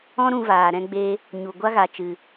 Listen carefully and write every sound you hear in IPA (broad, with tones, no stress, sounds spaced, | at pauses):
ɔ̃˦ ɾ ũ˧ v aː˨ ɾ ɛ̃˧ ɡ͡b e˧ | ɲ u˨ ɡʷ a˦ ɣ a˨ t͡ʃ ɨ˨